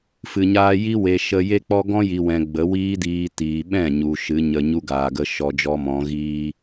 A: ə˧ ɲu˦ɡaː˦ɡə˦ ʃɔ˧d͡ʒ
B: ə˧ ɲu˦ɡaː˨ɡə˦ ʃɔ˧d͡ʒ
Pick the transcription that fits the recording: B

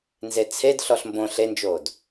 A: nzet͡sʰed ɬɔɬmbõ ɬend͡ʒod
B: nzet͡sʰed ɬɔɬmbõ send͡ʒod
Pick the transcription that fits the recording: A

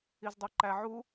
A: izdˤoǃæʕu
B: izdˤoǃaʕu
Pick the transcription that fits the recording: A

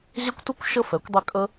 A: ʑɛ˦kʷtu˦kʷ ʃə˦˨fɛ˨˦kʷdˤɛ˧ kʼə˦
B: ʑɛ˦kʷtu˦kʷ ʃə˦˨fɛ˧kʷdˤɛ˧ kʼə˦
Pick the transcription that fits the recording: A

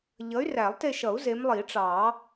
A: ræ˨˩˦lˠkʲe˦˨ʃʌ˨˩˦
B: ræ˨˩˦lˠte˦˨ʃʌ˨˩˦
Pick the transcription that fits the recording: B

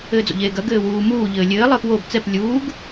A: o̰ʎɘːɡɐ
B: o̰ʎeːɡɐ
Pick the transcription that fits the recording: B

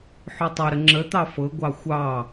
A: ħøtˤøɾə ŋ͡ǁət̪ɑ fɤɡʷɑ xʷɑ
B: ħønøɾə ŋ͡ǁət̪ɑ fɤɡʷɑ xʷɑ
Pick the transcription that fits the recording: A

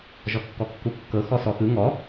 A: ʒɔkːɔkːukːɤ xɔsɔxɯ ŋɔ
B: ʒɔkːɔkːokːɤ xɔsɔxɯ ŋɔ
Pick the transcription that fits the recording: A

